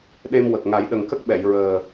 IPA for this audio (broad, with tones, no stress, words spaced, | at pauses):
ɗe˧mwə˨˩k̚ ŋa˨˩˦jɗə˨˩ŋkə˦˥k̚ɓɛ˨˩˨j ɹəː˨˩